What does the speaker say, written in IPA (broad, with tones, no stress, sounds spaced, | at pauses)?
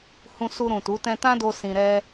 h ũ˧ s u˧ ɾ ũ˨ t u˨˦ t ɛ̃˧ t ã˦ d o˧ s ĩ˧ ɾ ɛ˦